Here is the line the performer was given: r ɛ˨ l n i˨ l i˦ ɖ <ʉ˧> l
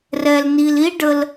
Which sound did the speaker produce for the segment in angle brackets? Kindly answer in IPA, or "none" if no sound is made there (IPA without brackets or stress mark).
ə˧